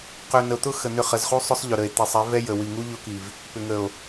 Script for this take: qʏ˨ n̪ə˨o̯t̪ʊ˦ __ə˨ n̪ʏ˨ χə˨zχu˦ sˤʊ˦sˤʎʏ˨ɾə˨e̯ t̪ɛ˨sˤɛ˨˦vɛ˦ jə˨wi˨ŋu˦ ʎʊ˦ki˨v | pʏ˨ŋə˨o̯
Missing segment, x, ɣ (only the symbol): x